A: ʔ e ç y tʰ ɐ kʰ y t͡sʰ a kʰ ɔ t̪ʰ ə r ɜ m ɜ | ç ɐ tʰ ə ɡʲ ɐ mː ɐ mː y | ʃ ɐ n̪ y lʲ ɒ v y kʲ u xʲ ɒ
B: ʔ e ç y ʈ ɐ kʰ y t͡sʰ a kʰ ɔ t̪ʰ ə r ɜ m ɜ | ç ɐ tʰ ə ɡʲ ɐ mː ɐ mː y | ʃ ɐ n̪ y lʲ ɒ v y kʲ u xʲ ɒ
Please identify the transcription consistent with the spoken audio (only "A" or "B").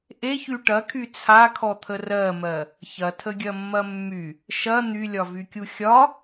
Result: B